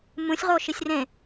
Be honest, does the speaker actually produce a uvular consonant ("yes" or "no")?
yes